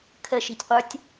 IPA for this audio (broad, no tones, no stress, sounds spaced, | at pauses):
kʰ ə ʃ i̤ tʲ qʷ ə˞ tʲ